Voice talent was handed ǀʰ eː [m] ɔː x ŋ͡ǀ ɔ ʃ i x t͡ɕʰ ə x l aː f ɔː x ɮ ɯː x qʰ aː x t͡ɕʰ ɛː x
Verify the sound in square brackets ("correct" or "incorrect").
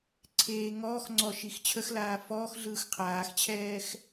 incorrect